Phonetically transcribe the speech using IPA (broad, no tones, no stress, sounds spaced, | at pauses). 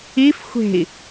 i f xʷ e̤ i̯